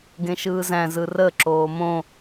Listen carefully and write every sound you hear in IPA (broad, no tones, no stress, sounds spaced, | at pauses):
ɡ ẽ ʃ ɯː z æ̃ z ɯ r ə ǁ oː m õ